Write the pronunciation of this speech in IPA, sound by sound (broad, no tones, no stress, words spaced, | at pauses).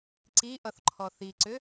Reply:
ǀi ʔʌθǃʰɔθiǀʏ